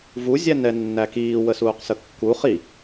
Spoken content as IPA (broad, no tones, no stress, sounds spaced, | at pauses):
v u zʲ æ n ɛ nː æ k iː w ə s uː q s ə kː u χ i